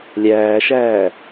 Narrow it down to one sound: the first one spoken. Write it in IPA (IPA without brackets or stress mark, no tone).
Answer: lʲ